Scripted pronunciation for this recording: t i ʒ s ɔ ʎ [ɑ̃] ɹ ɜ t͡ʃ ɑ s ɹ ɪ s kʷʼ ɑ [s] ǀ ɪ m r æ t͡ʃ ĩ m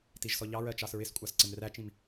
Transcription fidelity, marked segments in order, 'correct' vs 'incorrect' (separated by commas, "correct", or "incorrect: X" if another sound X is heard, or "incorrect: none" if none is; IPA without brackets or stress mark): incorrect: ɑ, correct